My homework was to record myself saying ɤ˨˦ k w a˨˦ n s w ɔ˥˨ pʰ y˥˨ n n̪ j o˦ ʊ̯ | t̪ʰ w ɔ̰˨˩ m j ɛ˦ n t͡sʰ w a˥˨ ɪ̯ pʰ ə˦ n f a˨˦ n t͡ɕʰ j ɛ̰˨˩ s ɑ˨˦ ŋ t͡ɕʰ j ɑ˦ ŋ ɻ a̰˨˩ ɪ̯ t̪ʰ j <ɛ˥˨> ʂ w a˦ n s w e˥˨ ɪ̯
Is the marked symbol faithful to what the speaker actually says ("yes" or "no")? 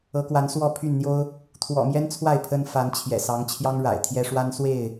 no